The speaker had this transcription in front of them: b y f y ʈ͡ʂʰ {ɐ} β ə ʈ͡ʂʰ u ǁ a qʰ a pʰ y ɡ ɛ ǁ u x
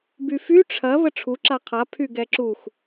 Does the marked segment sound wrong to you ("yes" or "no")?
no